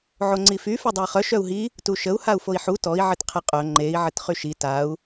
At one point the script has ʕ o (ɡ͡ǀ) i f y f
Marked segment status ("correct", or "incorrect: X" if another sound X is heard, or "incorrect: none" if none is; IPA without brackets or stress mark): incorrect: ŋ͡ǀ